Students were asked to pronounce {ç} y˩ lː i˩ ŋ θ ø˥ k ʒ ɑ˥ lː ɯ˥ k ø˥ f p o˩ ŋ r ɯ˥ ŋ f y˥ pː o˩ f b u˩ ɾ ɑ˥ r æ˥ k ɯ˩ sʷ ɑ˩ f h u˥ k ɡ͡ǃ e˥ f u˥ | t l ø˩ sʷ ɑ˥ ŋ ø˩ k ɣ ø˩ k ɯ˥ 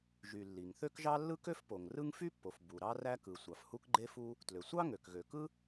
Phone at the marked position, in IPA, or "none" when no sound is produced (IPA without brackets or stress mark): ʒ